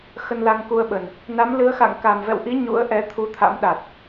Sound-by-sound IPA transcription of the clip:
x ə˧ n l a˧ ŋ k u˧ ə̯ ɓ ə˨˩ n | n a˨˦ m l ɨ˨˦ ə̯ x a̰˧˨ ŋ k a˨˩ m v ɛ̰˧˨ w ʔ i˨˦ ɲ ṵ˧˥ ə̯ ʔ ɛ˨˦ t̪ʰ u˨˦ t̪ʰ a̰˧˥ m ɗ a˨˩ t̚

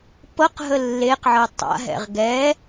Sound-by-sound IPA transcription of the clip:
p ɤ q ɦ ə lː e q ʕ ɤ tˤ a̰ ɦ ɛ̰ ʁ ɡ ɛ

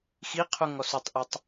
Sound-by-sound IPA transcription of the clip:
x i qʰ u ŋ ɔ s u tˤ ʔ ɐ tˤ

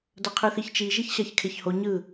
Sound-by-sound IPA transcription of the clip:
d ʌ qʰ ɯ θ i ç t͡ʃ i ʒ i ç ɕ a ç kʰ e ç h o ɲ ɯ

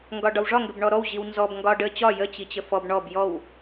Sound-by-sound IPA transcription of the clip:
ŋ ɡ ɒ ɖ ɒ w ʐ ɒ ŋ ɡ ə b ɳ ɔ ɾ ɔ w ʑ i w n z ɔ b ŋ ɡ ɒ ɖ ə t͡ɕ ɒ j ə t͡ɕ i t͡ɕ ə f ɔ b ɳ ɔ b j ɔ w

